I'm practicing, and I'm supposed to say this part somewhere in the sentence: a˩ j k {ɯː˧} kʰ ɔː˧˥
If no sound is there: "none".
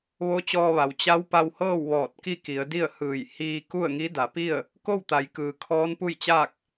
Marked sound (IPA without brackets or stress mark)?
ɯː˩